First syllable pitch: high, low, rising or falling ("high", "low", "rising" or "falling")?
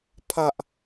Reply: high